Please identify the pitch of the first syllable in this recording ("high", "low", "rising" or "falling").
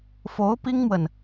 rising